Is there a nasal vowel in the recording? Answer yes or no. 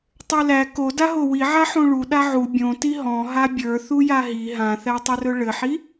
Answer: yes